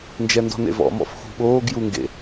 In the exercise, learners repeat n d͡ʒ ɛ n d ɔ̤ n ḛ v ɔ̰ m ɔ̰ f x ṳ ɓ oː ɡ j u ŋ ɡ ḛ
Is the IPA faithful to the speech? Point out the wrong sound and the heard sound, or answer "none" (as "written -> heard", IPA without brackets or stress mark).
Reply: none